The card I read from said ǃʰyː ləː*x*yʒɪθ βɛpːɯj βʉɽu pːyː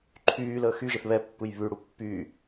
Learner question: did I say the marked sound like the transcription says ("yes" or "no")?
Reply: yes